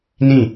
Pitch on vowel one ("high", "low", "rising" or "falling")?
falling